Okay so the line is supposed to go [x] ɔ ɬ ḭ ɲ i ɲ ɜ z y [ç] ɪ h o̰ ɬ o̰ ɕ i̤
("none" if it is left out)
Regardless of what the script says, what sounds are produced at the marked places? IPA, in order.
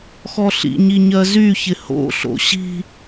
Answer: x, ç

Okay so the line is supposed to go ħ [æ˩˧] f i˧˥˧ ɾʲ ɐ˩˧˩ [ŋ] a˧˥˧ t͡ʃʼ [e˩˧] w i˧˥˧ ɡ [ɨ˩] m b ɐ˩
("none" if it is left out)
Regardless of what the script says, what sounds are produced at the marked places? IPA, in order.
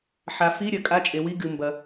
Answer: a˩˧, kʼ, e˩˧, ɨ˩

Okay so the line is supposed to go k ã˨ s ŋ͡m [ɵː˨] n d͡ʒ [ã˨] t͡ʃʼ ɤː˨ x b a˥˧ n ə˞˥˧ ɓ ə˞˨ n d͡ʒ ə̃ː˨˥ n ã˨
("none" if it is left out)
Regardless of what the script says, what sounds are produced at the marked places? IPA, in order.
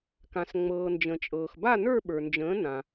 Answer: ɤː˨, ə̃˨

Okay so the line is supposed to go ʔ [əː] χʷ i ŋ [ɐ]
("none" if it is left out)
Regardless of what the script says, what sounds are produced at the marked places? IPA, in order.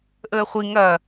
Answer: əː, ɐ

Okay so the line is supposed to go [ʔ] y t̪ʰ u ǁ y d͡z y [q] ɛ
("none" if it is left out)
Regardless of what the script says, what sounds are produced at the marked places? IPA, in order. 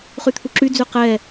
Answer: χ, q

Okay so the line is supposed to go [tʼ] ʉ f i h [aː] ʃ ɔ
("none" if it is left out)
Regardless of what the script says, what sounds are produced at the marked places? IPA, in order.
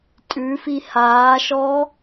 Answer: tʼ, aː

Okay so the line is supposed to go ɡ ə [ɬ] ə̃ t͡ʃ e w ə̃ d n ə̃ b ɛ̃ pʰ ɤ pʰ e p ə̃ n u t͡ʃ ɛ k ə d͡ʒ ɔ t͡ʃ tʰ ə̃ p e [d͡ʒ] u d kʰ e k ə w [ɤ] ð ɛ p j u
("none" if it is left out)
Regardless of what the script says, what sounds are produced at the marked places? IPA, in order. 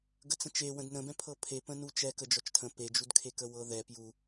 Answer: t͡s, d͡ʒ, ɤ

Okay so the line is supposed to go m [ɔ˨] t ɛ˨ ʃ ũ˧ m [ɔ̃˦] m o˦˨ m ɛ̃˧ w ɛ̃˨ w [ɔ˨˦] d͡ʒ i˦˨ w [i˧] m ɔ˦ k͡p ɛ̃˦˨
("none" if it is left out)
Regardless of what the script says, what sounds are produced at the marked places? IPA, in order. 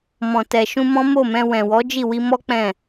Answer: ɔ̃˨, ɔ̃˦, ɔ˨˦, i˧

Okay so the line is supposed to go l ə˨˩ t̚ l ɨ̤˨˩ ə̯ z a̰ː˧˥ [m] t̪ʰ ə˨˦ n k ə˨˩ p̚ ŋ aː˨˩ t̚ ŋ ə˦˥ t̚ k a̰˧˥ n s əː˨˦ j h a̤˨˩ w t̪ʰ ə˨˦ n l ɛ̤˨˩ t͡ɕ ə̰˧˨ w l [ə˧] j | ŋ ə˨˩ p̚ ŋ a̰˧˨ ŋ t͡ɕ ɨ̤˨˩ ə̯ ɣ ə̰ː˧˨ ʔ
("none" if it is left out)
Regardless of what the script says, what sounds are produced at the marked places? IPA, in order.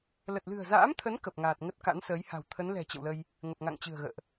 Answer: m, ə˧

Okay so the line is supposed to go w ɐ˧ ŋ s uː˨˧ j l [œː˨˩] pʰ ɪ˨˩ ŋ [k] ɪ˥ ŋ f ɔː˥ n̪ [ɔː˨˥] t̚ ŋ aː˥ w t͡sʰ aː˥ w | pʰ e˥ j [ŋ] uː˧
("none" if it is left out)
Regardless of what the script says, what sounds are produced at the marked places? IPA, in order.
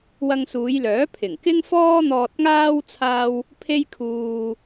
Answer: œː˨˥, k, ɔː˧, kʰ

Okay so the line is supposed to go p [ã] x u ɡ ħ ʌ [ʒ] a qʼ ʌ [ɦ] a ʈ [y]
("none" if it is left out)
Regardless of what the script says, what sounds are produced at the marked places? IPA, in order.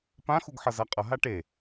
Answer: ã, z, ɦ, e

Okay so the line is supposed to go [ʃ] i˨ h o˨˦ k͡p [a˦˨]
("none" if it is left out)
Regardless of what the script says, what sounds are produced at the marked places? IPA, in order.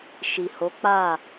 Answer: ʃ, a˦˨

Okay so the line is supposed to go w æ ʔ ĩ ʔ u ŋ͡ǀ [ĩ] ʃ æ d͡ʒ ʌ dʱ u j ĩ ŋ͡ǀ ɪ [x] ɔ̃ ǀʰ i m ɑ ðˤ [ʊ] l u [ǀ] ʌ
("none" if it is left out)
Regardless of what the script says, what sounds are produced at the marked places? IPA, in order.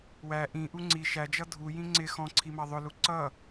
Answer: i, x, ʊ, ǀ

